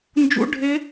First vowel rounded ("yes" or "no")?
yes